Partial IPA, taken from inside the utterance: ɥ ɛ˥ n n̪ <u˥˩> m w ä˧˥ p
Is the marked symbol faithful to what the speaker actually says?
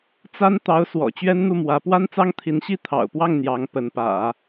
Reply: yes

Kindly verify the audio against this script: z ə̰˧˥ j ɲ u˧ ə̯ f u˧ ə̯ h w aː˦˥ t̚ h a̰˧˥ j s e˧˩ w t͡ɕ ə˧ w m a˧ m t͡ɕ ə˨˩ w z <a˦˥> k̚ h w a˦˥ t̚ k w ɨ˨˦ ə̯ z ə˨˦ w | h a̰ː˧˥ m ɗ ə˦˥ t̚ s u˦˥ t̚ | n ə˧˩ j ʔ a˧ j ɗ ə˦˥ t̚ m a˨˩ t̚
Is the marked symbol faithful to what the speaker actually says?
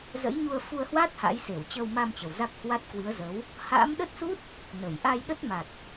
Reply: yes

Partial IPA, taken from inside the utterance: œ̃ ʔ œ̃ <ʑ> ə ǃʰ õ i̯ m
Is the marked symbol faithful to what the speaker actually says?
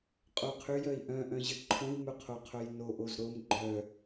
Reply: yes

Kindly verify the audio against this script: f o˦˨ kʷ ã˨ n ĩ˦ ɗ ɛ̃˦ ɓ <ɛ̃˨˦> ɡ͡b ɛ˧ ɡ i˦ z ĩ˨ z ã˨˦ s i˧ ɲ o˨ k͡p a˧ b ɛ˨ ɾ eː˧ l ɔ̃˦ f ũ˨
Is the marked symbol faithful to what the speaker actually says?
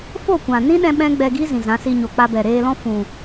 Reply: no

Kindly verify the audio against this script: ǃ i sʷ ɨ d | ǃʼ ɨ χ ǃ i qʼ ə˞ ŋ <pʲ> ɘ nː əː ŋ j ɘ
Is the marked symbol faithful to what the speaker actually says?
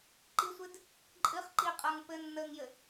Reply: no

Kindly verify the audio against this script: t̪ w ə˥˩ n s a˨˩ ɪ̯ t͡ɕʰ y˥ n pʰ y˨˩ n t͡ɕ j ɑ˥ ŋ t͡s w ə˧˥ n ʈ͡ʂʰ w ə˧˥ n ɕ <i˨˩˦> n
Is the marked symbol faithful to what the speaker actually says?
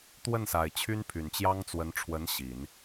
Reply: yes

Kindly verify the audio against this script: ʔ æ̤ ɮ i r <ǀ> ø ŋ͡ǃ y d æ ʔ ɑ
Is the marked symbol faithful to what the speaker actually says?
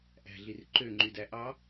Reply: no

